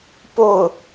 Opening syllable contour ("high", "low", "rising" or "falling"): falling